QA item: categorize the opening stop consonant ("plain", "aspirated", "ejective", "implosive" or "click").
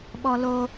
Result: implosive